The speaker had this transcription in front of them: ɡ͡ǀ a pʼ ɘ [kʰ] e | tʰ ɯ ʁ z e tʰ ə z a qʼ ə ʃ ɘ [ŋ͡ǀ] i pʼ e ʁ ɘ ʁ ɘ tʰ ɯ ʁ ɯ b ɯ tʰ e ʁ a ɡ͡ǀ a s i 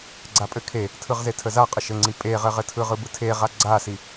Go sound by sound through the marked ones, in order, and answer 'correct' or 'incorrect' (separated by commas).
correct, correct